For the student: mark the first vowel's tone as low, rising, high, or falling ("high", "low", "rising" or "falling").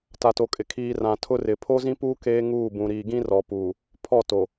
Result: low